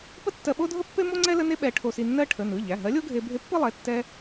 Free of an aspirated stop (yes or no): no